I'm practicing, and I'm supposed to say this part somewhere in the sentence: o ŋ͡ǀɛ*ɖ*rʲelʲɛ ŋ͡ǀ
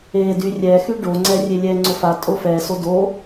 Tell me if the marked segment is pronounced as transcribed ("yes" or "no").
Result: no